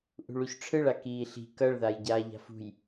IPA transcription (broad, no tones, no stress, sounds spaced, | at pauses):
ʔ ṳ ɭ u ç ʈ͡ʂʰ ɯ ɭ a k iː ɬ i̤ k ʌ ɭ ð a j ɟ aː ʎ a̤ f ṳ j